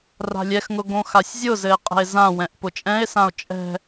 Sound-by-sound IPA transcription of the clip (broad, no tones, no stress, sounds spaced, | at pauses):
r a̤ lʲ ɛ x ŋ ʊ ɡ õ x a sʲ zʲ ʊ z ɘ e̯ qʼ ɛ̤ e̯ z ã w ɛ̃ ʔ p ʊ t͡ʃʼ ɛ̃ e̯ s ã o̯ t͡ʃʼ ɛ̤